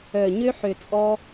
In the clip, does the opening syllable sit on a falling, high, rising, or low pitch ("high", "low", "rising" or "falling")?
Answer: low